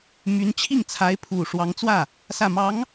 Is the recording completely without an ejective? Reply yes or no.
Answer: yes